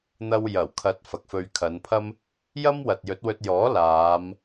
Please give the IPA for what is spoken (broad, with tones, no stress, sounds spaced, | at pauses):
n̪ ɐ˧ w j ɐ˨˩ w kʰ ɐ˨˥ t̚ f ɐ˨ k̚ f ɵ˧ ɥ kʰ ɐ˨˧ n pʰ ɐ˥ m | j ɐ˥ m w ɐ˨ t̚ j ɵ˨˥ t̚ w ɵ˧ t̚ j ɔː˨˥ l aː˨˧ m